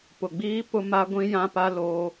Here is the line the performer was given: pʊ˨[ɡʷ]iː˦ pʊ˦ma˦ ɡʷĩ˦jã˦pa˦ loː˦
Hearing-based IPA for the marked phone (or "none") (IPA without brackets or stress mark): ɡ͡b